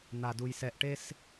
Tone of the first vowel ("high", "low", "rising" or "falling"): low